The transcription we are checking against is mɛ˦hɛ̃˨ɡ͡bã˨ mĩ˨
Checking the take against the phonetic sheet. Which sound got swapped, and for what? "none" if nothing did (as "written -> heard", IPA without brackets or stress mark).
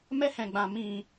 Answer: none